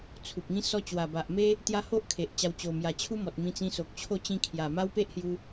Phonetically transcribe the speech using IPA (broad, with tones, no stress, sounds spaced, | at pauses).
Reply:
t͡sʰ u˨ p̚ ŋ ĩ˦ s ɔ˦ t͡ɕ w a˨˩ b a˨ ʔ m e˦ | t̪ j a˦ h o˦ ʔ kʰ e˨ ʔ t͡ɕ a˧ w t͡ɕ o˨˩ m j a˨˩ t͡ɕʰ u˦ m ɔ˨ t̚ m ĩ˧ t͡s ĩ˧ s o˨ k̚ t͡ɕʰ o˥˧ t͡ɕ ĩ˧ kʰ j a˨˩ m a˦ w p e˦ ʔ h j u˧